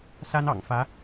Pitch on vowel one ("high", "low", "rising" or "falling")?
high